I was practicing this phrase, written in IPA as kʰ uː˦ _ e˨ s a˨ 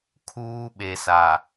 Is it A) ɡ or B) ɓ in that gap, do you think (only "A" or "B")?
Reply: B